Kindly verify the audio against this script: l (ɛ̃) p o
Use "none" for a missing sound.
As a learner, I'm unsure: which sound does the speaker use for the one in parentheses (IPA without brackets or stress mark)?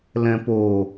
ɛ̃